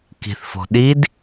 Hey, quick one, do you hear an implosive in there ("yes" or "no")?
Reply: yes